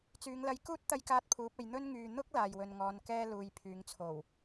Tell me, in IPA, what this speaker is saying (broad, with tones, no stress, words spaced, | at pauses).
t͡syː˨˧ŋlɐ˧j kuː˥t̚ t̪ɐ˥jkaː˥t̚pʰuː˨˥p̚e˨˧j n̪ɵ˥n ŋyː˨ n̪ʊ˥k̚ laː˨jwɵ˨nŋɔː˨˧n kɛː˥luː˨˧jpʰyː˨˧ŋ t͡sʰo˨˩w